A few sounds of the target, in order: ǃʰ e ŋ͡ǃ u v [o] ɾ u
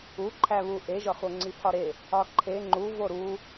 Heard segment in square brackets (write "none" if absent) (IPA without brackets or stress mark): o